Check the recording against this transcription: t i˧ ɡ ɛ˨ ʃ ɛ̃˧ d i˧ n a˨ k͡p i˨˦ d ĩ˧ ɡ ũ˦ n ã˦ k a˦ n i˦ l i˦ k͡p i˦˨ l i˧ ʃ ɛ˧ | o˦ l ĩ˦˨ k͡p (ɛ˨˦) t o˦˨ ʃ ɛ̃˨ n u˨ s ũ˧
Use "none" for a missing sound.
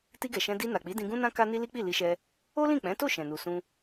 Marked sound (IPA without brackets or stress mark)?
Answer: ɛ̃˨˦